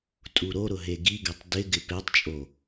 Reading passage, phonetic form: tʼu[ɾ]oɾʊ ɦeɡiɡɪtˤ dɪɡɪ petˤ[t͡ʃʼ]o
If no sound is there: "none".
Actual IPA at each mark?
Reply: ɾ, t͡ʃʼ

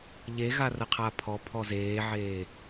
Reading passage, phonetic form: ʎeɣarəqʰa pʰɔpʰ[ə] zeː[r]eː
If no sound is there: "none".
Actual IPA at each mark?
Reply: ɔ, ʕ

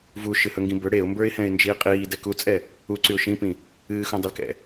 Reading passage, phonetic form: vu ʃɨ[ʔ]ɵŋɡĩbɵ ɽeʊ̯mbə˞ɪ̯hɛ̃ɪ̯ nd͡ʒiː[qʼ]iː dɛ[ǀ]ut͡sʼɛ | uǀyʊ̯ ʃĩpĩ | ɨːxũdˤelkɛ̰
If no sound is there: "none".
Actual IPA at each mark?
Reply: h, qʼ, k

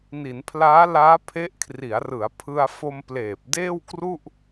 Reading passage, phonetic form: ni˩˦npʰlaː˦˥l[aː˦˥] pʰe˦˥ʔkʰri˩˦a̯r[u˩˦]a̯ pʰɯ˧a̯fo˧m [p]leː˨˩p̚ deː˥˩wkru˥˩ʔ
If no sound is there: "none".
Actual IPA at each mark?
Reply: aː˦˥, ɯ˩˦, p

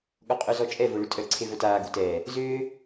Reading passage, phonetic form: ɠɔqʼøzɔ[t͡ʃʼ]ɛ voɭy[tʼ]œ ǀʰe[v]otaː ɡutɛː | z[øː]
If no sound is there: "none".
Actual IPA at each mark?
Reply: t͡ʃʼ, tʼ, v, øː

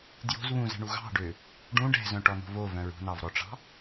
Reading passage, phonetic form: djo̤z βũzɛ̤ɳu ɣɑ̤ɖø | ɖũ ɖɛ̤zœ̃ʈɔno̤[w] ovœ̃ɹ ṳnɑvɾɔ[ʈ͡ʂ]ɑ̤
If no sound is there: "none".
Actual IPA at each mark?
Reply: v, ʈ͡ʂ

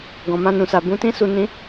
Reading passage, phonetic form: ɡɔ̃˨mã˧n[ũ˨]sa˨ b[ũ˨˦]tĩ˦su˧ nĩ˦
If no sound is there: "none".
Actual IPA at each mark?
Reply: ũ˨, ũ˨˦

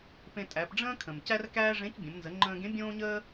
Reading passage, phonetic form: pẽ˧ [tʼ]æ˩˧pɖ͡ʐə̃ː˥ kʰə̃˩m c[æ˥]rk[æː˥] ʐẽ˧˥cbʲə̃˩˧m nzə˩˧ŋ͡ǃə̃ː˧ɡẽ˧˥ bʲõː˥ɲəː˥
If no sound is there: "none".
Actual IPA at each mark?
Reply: tʼ, æ˥, æː˥

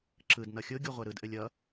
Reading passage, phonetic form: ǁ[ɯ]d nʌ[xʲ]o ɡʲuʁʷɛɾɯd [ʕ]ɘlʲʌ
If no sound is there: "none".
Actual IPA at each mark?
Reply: ɯ, xʲ, ʔ

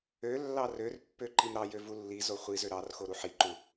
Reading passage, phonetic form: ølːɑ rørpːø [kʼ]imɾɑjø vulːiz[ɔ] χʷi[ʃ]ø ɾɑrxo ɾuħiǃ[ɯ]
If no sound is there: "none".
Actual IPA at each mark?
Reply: ǃ, o, z, u

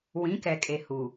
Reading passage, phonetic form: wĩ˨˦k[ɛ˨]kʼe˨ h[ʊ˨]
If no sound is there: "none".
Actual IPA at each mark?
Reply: ɛ˨, u˨

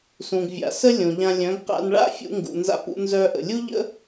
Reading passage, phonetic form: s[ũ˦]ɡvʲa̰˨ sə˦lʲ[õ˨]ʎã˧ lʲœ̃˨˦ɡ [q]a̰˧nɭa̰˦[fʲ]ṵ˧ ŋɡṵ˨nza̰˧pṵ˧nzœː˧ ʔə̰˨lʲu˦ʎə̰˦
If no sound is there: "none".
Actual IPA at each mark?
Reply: ũ˨, õ˨, q, fʲ

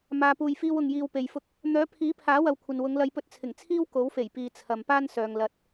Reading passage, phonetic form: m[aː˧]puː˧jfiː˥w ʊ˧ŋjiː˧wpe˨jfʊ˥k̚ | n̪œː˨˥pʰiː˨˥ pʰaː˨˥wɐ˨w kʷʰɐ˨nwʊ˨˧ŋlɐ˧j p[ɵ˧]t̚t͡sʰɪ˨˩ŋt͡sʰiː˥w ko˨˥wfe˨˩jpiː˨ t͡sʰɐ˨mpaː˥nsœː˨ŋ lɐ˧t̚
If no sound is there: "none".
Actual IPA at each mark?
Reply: aː˧, ɵ˧

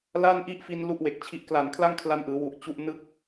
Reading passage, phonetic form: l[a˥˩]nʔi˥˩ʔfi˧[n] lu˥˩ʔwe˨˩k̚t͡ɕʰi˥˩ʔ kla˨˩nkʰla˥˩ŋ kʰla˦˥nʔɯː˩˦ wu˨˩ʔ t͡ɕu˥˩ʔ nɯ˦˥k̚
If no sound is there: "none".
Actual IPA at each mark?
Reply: a˥˩, n

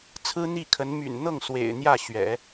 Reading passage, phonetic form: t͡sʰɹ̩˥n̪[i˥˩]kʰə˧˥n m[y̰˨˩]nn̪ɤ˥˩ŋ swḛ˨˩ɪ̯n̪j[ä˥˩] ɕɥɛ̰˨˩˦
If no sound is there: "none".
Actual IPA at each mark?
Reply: i˥˩, y̰˨˩, ä˥˩

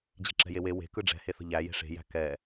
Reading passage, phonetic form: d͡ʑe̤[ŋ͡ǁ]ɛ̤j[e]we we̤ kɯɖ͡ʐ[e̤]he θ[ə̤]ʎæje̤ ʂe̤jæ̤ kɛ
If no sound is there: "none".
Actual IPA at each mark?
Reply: ǁ, e, ɛ̤, ə̤

